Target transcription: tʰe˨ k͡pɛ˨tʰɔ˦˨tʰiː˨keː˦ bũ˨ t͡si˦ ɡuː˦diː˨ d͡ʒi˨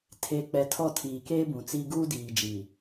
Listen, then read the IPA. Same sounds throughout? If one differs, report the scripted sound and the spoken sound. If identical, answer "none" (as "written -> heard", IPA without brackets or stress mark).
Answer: none